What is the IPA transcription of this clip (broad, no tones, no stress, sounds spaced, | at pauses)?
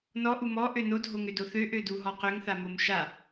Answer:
n ɔ ʔ u m ɔ ʔ ø n o dʱ o ŋ ø d o θ ø ʔ ø d u ɦ ɔ q ø ŋ θ a m o m ʃ a